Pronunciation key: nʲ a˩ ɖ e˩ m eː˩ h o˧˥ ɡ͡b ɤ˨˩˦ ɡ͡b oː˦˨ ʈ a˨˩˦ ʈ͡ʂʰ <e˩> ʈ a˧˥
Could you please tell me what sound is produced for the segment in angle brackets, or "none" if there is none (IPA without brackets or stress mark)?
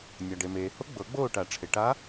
e˩